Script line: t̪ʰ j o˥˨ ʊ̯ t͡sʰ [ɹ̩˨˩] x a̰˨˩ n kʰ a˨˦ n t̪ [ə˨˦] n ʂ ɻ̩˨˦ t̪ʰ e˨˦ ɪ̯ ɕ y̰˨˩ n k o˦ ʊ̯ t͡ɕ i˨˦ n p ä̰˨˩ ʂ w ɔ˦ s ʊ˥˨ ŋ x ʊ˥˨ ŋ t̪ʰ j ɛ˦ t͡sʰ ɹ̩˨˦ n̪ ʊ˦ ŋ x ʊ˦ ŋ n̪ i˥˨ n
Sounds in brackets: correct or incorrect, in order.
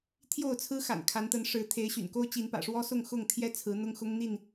incorrect: ɹ̩˦, correct

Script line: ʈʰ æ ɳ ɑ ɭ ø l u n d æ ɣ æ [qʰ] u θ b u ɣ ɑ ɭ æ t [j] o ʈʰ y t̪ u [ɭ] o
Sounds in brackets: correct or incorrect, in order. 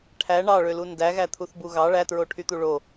incorrect: t̪ʰ, incorrect: ɹ, correct

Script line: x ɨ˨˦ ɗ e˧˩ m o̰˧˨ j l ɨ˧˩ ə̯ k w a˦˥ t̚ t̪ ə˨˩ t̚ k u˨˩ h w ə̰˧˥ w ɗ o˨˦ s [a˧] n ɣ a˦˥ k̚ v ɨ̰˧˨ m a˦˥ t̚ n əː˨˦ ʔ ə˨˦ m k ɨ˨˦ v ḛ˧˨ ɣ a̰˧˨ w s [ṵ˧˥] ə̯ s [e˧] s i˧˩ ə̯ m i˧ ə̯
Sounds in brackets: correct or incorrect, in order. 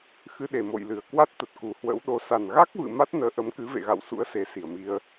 incorrect: a˨˩, correct, incorrect: e˨˦

